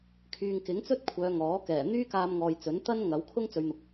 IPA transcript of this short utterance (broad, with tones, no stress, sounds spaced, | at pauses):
kʰ yː˨ ŋ k ɪ˨˥ ŋ t͡s ɵ˥ t̚ kʷʰ œː˨˧ ŋ ɔː˨˥ k ɛː˨˩ n̪ yː˥ k aː˧ m ŋ ɔː˨ j t͡s ɵ˨˥ n t̪ ɐ˥ n ŋ ɐ˨˥ w kʰ ʊ˥ ŋ t͡s ɵ˨˧ ɥ n̪ ʊ˨ k̚